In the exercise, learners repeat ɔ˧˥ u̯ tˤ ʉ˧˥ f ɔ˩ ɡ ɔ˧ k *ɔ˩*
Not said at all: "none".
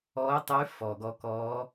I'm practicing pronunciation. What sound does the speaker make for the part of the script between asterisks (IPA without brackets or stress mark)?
ɔ˧˥